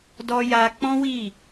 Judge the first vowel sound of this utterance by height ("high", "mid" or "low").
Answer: mid